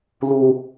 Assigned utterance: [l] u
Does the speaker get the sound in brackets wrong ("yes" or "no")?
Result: no